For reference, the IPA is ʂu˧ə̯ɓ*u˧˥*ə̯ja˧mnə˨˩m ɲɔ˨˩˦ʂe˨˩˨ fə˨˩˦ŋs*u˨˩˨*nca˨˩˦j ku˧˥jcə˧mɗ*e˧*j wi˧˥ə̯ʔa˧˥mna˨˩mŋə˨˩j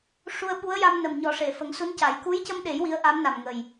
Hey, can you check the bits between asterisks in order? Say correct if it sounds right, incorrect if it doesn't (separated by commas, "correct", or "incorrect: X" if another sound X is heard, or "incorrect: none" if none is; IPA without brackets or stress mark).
correct, incorrect: u˧˥, incorrect: e˨˩˦